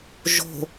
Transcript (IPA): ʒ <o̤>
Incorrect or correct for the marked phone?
correct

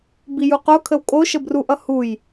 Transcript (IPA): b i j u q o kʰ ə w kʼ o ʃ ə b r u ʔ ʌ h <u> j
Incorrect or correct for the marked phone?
correct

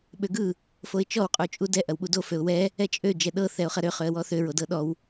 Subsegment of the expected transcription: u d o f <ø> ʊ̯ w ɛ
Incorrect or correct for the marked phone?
correct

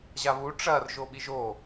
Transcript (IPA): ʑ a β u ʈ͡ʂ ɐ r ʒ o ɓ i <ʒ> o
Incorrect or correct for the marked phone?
correct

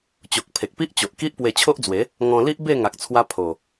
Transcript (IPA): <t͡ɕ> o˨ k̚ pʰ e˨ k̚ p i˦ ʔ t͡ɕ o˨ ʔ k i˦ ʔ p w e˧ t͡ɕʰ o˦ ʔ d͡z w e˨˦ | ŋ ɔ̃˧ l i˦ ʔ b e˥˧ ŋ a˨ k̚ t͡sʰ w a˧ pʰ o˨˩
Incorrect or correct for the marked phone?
correct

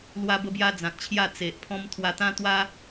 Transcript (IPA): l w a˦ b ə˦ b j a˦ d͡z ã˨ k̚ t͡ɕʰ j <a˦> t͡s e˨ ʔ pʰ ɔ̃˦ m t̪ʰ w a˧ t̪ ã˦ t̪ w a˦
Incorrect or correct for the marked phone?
incorrect: a˥˧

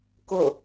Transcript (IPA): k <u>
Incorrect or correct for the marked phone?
incorrect: o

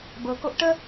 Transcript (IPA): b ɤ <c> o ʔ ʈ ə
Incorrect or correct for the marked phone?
incorrect: k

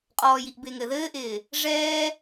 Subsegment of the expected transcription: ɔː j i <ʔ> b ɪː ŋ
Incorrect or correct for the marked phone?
correct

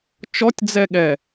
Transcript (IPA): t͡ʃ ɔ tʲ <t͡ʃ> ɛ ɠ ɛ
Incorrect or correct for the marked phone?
incorrect: d͡z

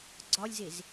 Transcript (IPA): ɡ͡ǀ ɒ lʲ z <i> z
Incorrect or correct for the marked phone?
incorrect: e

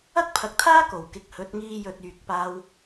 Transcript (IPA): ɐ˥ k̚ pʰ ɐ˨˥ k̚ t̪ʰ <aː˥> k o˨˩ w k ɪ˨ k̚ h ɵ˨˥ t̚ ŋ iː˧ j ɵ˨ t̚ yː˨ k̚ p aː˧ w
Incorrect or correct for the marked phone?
correct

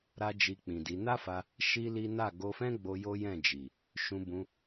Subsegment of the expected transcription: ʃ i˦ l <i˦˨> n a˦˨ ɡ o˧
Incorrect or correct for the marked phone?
incorrect: i˦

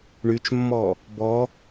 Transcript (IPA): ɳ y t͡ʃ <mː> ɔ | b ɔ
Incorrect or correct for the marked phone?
correct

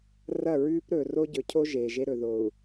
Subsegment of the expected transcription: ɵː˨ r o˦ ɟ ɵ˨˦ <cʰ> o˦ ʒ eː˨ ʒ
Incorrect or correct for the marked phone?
correct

